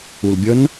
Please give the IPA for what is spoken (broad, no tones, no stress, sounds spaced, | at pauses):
u l bʲ ʌ n